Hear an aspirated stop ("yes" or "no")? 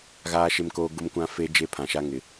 yes